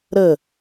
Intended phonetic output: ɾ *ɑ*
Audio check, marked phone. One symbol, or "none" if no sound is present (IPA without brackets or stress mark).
ə